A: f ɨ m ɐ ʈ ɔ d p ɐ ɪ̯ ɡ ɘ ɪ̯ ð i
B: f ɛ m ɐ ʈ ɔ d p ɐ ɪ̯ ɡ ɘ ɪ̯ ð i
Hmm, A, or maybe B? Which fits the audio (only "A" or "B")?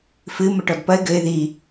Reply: A